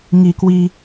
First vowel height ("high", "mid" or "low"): high